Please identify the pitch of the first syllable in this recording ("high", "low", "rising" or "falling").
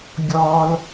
high